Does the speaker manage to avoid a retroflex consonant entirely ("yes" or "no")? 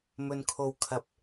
yes